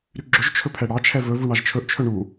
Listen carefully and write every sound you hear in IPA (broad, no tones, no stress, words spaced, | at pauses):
ɾyɡ͡ǁɵʒ t͡ʃʰɵpʰɛɽɑt͡ʃʰɛ vɵvu ɳɑʒt͡ʃʰɵʔt͡ʃʰɵ ɳu